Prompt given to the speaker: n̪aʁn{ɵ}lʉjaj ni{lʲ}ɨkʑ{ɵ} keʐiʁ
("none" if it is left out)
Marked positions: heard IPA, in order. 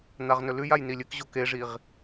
ɵ, lʲ, o

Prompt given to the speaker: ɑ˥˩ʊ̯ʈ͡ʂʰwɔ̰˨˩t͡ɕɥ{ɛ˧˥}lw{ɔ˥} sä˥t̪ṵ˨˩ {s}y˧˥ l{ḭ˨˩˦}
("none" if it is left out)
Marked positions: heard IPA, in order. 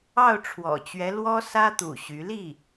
ɛ˧˥, ɔ˥, ɕ, i˥˩

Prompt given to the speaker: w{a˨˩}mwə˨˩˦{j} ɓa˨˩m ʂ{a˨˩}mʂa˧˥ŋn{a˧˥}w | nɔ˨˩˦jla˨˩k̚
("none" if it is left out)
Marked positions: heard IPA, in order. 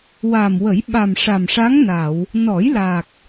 a˨˩, j, a˨˩, a˨˩˨

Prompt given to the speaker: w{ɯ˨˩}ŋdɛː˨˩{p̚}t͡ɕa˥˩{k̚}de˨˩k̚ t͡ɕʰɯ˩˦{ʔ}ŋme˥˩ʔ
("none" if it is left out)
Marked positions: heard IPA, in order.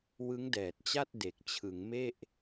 ɯ˦˥, t̚, t̚, none

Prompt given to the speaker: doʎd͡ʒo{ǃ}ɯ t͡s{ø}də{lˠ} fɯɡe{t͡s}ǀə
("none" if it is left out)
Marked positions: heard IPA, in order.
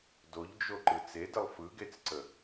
ǃ, e, lˠ, t͡s

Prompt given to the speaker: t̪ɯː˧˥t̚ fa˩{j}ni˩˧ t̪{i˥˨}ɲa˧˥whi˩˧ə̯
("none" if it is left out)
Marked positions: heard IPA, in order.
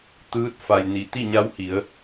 j, i˥˨

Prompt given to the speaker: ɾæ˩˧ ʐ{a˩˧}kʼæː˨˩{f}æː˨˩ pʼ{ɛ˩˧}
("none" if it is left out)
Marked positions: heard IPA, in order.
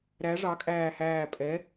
ɑ˩˧, h, ɛ˩˧

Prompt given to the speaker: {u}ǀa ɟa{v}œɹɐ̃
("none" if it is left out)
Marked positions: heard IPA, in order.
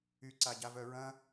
y, v

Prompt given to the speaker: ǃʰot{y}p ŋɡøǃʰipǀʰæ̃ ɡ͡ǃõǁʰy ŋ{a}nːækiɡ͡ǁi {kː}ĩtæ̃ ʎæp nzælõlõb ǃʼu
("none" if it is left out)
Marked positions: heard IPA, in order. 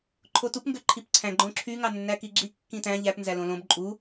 u, ɑ, kː

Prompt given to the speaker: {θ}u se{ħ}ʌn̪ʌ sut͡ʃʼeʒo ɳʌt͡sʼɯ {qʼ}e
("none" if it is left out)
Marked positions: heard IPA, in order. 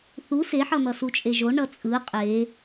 θ, ħ, qʼ

